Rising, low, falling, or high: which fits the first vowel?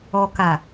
low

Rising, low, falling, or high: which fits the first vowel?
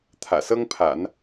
low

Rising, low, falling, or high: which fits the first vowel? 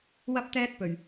high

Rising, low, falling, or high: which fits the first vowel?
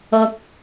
low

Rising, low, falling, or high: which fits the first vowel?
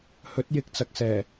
rising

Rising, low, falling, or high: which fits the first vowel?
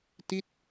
falling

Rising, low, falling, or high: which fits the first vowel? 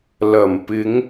low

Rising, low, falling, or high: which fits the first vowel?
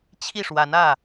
falling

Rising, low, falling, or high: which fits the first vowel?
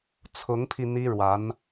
rising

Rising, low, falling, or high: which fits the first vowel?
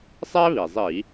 high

